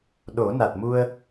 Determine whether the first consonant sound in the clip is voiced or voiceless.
voiced